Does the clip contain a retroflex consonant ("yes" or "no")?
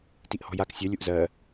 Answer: no